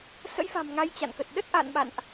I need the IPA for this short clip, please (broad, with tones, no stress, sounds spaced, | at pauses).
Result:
s ə̰˧˥ j f a̤˨˩ m ŋ a˧ j t͡ɕ a̰˧˨ n k ə˨˩ t̚ ɗ ə˦˥ t̚ ʔ a̰˧˨ n ɓ a̰˧˨ n ʔ